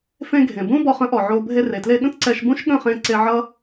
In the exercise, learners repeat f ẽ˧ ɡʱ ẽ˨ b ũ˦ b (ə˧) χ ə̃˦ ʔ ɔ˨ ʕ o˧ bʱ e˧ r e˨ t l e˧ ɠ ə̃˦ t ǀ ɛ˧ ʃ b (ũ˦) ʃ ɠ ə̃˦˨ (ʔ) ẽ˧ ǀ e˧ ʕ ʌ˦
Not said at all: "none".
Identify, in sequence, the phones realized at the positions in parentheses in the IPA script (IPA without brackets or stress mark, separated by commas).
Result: ɔ˧, ũ˦, χ